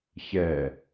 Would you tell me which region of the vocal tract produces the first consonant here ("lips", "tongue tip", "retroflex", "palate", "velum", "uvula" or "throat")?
palate